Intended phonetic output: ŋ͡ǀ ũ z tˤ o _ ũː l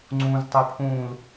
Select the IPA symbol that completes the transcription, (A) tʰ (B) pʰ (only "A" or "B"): B